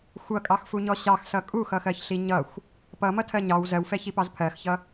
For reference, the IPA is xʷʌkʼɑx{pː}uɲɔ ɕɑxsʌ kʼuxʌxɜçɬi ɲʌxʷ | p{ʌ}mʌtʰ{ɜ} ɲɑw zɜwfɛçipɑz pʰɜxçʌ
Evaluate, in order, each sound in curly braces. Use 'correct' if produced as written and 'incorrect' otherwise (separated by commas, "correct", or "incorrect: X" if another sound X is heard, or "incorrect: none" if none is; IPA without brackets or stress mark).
incorrect: f, correct, correct